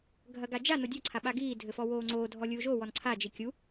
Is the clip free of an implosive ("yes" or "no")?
no